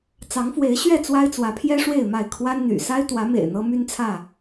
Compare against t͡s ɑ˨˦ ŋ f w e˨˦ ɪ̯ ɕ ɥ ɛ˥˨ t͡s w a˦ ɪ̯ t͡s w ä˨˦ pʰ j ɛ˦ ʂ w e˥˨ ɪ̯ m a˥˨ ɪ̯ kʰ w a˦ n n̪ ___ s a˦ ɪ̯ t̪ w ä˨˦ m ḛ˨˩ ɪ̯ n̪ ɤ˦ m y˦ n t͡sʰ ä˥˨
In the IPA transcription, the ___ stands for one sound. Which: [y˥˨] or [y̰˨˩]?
y̰˨˩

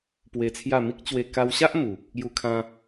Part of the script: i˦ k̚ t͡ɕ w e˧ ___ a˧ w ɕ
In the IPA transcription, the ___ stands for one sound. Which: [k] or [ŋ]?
k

